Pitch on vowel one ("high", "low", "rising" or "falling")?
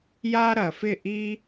high